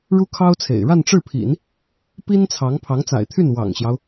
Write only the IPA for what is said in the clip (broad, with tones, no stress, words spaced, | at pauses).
ɻu˥kʰɑ˥ʊ̯t͡sʰḛ˨˩ɪ̯ ɻa˥˧nʈ͡ʂɻ̩˥˩pʰḭ˨˩˦n | pi˥nt͡sʰɑ˧˥ŋ pʰɑ˧˥ŋt͡sa̰˨˩ɪ̯t̪ʰy˥˩n wɑ̰˨˩ŋɕjɑ˦ʊ̯